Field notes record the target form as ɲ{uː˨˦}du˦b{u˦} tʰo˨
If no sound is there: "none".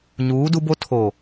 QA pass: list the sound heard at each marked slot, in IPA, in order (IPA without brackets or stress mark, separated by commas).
uː˨˦, o˦